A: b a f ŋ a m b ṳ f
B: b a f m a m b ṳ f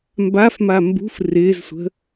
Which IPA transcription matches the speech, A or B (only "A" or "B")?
B